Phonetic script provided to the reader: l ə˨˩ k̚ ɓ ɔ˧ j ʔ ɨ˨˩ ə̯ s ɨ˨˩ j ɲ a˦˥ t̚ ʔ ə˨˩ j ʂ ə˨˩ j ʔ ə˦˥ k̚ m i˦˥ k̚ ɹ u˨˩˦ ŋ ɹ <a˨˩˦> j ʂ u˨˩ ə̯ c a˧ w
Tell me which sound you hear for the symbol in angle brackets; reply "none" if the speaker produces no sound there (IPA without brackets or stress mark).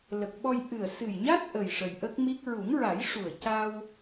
a˨˩˦